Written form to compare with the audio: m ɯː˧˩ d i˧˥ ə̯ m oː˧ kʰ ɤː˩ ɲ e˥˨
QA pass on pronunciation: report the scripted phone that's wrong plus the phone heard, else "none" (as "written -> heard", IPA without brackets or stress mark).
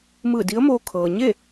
none